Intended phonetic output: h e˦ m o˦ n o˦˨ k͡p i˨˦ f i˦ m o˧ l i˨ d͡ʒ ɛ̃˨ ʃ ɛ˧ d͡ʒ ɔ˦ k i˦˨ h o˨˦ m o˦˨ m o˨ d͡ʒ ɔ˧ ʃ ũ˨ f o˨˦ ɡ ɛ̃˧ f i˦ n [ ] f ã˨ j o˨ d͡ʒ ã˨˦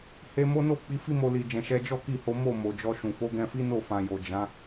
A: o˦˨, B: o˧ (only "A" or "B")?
A